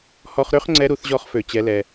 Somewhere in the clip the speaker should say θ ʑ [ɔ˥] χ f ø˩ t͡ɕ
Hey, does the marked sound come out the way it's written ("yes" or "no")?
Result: no